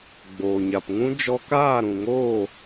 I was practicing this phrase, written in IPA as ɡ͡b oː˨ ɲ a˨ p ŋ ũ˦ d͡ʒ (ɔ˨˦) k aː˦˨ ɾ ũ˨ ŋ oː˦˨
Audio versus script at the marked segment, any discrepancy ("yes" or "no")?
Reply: yes